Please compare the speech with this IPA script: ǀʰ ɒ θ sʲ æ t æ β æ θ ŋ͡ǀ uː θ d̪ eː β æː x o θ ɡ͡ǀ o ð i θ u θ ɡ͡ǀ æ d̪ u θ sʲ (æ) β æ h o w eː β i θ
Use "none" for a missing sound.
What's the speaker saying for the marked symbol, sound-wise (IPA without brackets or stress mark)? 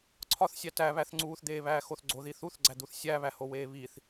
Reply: æ